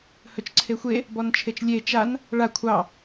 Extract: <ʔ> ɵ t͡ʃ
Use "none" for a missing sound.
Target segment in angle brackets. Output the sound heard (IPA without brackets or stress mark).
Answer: h